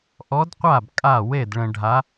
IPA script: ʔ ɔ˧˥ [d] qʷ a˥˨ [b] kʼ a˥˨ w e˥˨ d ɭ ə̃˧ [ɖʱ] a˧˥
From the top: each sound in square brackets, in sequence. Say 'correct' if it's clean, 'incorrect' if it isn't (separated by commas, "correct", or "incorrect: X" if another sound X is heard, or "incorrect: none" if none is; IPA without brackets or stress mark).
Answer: correct, correct, correct